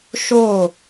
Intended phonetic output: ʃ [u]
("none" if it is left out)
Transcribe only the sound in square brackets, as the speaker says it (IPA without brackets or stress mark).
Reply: o